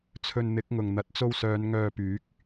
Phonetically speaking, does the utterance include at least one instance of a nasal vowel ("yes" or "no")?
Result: no